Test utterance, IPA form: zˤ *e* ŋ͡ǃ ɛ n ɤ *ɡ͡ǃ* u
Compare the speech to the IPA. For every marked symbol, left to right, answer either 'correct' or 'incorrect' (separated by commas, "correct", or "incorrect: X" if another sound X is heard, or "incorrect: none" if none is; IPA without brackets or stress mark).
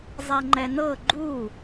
incorrect: ɛ, correct